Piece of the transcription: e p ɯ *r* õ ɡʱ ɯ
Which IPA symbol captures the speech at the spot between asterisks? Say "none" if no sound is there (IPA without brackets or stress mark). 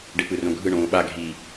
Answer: r